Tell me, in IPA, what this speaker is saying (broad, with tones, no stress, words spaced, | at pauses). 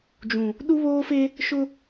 d͡ʒũ˨ | ɗu˦βoː˦fe˦ | ʃʊ˦